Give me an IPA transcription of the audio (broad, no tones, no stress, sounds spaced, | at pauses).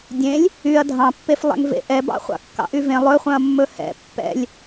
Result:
dʲ ẽ lʲ | y ɐ̯ dʱ ɑ̃ pː e f lˠ ɛ̰ ŋ v ḛ ʔ ɛ b ɑ̰ χʷ ɑ̰ kː ɑ̰ ʔ y v ẽ lˠ ɵ χʷ œ̃ ɐ̯ mː ɵ h ɛ̰ pː ɛ̰ lʲ